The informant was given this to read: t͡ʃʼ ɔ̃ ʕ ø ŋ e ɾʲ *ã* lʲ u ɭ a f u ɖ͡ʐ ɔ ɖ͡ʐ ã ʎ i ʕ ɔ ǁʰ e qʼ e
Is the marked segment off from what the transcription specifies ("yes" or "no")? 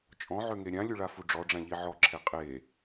no